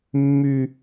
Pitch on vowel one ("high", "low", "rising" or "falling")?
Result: high